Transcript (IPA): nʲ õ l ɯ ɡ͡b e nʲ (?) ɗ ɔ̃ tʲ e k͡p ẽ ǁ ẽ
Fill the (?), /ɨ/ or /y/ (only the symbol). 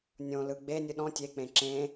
ɨ